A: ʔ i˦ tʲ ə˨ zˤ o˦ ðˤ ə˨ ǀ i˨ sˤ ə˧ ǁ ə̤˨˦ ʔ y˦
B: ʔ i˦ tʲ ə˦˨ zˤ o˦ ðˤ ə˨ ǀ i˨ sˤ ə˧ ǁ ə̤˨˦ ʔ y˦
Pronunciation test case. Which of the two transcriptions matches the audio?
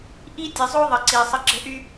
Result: A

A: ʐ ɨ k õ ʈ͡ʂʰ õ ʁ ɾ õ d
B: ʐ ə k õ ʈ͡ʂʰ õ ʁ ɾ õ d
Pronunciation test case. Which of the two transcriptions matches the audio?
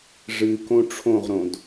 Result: A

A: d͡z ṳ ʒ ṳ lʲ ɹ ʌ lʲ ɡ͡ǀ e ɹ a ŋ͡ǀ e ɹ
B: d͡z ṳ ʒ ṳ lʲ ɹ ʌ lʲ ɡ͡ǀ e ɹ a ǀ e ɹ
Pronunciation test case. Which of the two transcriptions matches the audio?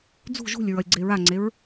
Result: A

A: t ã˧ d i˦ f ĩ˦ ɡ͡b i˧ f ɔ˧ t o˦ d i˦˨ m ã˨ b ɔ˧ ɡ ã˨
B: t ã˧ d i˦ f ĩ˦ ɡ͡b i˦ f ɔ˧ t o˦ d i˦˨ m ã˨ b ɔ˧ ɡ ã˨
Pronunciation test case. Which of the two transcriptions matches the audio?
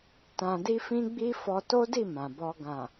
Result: B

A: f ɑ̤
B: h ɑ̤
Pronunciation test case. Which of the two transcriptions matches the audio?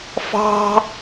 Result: A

